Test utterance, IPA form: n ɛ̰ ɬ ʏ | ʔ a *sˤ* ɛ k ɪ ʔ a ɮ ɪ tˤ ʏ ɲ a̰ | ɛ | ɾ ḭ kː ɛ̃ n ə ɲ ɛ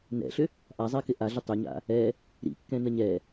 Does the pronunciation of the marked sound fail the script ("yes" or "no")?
yes